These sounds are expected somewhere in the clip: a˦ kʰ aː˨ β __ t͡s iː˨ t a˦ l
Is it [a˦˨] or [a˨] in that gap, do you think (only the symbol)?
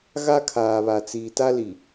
a˨